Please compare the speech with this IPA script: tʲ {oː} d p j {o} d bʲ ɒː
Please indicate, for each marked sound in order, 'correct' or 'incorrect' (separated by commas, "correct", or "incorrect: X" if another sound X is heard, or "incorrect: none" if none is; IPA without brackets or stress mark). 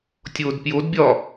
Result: correct, correct